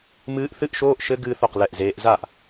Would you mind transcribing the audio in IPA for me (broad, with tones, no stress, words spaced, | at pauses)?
mɨː˦˥ʔ θɨ˦˥ʔʃoː˧˥˧ʔ ʃɘ˦˥ ɡɨː˦˥θo˥˩q lɛ˥˩ʔzeː˦˥ʔ za˥˩ʔ